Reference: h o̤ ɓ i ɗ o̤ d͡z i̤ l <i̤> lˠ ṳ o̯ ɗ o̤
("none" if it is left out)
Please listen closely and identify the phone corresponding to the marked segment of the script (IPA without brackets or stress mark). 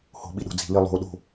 i